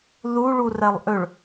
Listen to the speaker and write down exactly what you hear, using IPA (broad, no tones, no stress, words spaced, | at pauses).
ðu ɭurɛlˠʔʏɭ